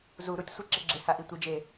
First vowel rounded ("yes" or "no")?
yes